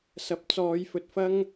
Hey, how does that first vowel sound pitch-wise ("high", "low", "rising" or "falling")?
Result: rising